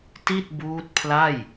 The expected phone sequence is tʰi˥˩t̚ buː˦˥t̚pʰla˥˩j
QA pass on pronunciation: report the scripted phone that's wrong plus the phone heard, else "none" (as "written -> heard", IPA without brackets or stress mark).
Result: tʰ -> t